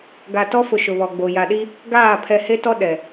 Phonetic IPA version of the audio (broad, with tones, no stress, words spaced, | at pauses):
ɡa˨tɔ˦fʊ˨ ʃʊ˨βɔ˨ɡ͡bo˨ ja˨ɗi˦ | ɡaː˦˨ pʰɛ˨he˦tɔ˦ ɗɛ˨